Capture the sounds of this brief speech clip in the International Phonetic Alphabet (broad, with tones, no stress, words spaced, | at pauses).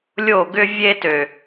lʲo˦˨ɡʏ˦ vʲe˦tø˨˩